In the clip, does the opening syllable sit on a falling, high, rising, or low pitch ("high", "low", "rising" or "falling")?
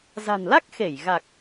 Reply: low